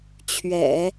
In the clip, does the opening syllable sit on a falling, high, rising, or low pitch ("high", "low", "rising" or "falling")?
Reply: low